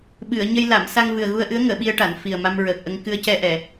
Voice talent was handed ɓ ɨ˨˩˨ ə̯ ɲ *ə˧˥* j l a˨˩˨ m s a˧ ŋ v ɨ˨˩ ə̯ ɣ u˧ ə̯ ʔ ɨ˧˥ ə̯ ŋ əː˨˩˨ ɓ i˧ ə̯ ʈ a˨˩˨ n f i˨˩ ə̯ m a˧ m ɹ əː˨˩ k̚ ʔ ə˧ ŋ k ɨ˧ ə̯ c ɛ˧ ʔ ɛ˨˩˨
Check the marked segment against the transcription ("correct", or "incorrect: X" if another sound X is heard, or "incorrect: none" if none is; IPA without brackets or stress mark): incorrect: ə˧